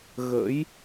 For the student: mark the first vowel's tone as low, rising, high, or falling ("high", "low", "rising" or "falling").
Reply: rising